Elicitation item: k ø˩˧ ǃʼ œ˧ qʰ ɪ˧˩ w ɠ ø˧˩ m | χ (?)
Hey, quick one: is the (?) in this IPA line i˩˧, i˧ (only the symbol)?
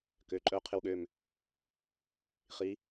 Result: i˩˧